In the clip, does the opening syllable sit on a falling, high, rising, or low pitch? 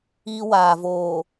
high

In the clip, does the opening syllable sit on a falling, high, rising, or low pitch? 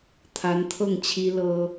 rising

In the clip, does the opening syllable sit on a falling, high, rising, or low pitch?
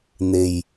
low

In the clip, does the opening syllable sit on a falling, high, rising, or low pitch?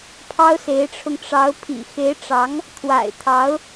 high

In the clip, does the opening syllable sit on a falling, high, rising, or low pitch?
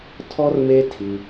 high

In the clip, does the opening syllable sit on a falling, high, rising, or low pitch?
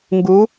rising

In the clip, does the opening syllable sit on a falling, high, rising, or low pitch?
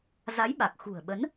rising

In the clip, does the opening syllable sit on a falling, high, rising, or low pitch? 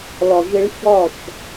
low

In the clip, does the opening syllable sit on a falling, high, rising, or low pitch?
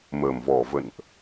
low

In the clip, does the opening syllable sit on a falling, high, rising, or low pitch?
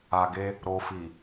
low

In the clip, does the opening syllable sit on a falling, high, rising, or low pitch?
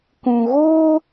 low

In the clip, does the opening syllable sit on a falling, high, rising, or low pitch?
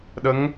rising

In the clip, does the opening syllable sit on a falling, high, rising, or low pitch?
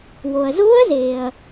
low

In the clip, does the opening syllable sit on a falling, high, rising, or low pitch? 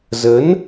rising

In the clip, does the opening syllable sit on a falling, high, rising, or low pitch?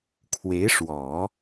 rising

